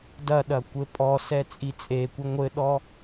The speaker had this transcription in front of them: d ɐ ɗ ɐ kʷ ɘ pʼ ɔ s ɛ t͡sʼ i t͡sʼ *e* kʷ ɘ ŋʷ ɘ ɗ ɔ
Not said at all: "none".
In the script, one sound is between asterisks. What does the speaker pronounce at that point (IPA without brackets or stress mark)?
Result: e